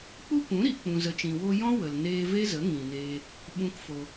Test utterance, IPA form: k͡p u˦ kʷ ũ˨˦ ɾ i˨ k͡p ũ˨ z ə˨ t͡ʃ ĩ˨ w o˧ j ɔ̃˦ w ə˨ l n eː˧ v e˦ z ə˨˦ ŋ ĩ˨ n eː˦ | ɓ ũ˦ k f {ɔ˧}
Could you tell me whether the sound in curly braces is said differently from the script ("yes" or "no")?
yes